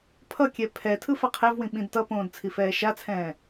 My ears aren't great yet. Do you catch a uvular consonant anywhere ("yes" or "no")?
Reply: yes